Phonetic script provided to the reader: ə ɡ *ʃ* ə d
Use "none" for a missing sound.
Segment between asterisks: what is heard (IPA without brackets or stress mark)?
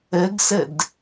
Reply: s